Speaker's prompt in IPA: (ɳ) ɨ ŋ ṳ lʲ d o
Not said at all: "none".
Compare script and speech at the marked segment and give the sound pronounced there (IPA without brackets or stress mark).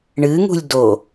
ɳ